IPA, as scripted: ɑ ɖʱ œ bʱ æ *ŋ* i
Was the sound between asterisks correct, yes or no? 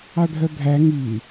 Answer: yes